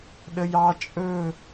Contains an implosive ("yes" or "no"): yes